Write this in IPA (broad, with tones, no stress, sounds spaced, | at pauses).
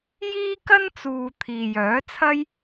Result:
j iː˥ k ɐ˥ n t͡s uː˨ t̪ʰ iː˨ j œː˨˥ t͡sʰ ɐ˥ j